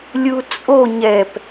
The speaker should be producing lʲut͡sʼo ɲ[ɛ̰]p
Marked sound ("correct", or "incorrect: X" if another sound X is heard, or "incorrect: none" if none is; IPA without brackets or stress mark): incorrect: ɛ